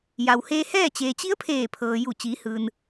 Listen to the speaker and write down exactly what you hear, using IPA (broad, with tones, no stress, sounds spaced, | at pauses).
j a˩ w h eː˧ h ɛː˥˨ t͡ɕ eː˩ t͡ɕ i˧˥ ə̯ pʰ eː˧˩ pʰ ɤː˩ j u˧˩ t͡ɕ iː˩˧ h ɯː˩ n